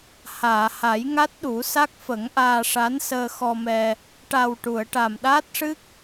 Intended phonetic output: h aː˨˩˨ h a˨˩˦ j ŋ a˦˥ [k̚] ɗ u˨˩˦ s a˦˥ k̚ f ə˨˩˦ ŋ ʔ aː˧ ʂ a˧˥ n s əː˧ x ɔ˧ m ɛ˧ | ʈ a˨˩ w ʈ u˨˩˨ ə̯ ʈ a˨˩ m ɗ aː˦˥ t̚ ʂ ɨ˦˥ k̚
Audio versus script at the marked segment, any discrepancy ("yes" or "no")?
yes